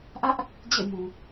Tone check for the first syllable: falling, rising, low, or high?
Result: high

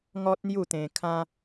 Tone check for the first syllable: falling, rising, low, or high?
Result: high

